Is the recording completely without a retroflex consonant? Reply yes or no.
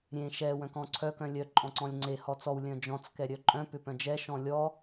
yes